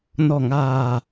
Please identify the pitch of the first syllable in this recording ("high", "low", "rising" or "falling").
low